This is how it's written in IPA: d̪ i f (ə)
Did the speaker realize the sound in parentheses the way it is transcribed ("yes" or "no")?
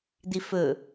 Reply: no